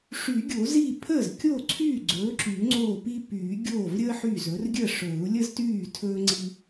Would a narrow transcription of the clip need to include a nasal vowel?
no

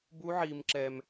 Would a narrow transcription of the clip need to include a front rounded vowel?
no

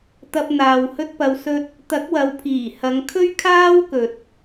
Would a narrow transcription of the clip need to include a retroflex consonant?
no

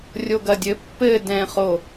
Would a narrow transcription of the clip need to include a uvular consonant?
yes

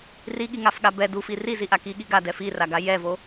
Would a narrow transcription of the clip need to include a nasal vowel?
no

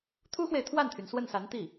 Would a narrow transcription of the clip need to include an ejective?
no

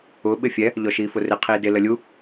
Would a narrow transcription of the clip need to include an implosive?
yes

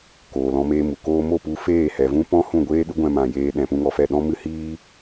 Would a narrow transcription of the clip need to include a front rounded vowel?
no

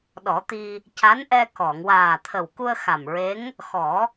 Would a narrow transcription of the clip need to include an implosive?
yes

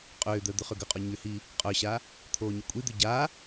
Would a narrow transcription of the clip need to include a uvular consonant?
yes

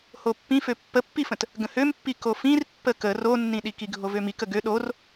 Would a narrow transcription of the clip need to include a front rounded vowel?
yes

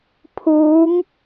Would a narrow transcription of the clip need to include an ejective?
no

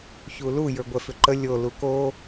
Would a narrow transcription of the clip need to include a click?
yes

